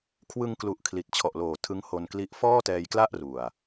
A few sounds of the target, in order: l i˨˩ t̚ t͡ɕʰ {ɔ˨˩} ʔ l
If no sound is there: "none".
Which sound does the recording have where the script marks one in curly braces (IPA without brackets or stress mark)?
ɔ˨˩